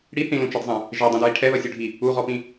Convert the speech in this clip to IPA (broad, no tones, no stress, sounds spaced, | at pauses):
ɽ i θ ĩ l ũ t͡ʃ ʌ d zˤ ɛ̃ | ʒ ɛ dˤ ĩ d ɹ i ʈʰ ɛ ð ʌ sʲ o ɖʱ i | u ʁ ɔ p ĩ